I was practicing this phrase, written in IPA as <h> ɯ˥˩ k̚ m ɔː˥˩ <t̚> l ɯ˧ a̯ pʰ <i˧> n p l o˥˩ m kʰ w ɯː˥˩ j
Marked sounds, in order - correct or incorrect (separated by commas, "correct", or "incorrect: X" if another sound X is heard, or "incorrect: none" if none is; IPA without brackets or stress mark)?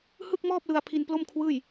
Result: correct, incorrect: p̚, correct